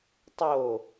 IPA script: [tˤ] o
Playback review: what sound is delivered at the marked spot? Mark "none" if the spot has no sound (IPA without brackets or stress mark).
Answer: tˤ